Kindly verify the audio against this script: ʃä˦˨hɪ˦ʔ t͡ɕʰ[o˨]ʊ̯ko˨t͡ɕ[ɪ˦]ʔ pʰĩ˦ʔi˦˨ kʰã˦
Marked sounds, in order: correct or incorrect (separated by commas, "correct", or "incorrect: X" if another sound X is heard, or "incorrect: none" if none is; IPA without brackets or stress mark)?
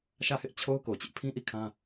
incorrect: o˦, correct